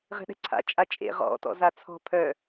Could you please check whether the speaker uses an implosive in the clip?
yes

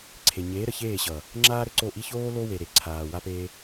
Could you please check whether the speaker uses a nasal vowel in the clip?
no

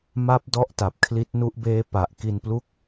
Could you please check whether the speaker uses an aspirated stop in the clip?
yes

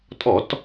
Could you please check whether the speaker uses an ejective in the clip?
yes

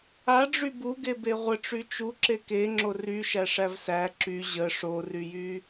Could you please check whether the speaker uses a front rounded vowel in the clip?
yes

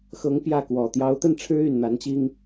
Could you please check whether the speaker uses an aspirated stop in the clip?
yes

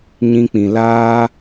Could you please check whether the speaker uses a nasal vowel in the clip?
yes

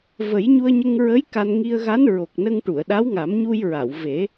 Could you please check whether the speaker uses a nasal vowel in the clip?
no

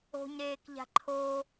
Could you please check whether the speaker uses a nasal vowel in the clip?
no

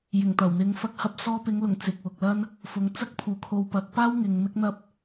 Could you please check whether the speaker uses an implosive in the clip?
no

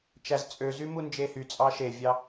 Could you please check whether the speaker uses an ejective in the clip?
yes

